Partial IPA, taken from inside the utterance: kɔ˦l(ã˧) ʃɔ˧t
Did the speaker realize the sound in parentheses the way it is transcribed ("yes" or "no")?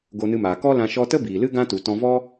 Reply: yes